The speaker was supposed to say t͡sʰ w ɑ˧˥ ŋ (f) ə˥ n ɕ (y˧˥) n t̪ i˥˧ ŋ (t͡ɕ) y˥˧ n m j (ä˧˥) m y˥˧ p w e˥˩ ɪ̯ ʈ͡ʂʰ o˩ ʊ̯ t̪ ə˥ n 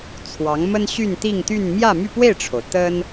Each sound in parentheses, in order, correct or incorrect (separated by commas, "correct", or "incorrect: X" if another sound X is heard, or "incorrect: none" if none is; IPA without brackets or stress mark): incorrect: m, incorrect: y˥˧, incorrect: t̪, incorrect: ä˥˧